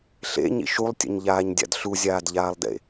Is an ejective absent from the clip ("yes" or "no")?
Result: yes